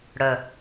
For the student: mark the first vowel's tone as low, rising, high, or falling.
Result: low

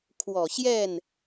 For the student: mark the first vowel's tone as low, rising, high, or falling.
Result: low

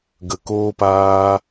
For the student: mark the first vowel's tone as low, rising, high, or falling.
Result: low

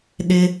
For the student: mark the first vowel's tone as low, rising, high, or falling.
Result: high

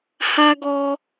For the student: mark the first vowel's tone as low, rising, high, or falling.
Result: high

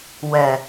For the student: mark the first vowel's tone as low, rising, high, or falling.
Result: low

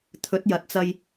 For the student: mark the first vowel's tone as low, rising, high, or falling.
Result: rising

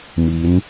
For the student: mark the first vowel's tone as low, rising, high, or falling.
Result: rising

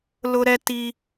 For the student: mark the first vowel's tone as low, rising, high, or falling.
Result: high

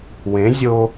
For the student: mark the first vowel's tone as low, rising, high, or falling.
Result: rising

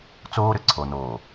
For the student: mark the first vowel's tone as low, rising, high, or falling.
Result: high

